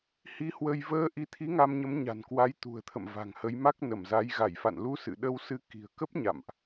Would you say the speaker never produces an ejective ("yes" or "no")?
yes